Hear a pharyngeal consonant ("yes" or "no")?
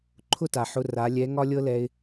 yes